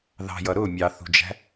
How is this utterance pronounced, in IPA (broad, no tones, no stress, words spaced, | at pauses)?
ðɑ̤jʌ ɾʊ mʲɑθṳd͡ʒæ̤